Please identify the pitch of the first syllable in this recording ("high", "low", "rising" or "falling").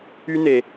high